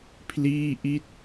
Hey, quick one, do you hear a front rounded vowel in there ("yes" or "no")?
no